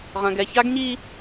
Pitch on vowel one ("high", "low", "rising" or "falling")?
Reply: low